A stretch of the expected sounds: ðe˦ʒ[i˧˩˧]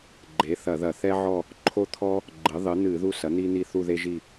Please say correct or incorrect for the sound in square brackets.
incorrect